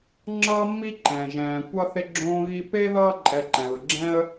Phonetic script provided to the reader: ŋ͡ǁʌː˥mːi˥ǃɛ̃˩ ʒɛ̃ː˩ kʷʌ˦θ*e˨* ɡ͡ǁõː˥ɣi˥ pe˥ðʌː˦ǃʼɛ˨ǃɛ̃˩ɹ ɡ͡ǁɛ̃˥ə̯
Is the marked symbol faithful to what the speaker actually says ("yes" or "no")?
no